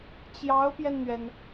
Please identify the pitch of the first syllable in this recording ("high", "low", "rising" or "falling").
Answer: rising